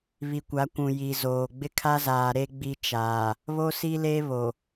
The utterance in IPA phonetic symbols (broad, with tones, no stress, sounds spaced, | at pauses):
β i˨ kʷ a˨˦ kʷ ũ˨ j i˨ z oː˨ ɡ͡b ɪ˦ kʰ a˦ z aː˨ ɾ e˦ ɡ͡b i˦ t͡ʃ aː˨ | β o˦ s i˦ l e˦ β o˨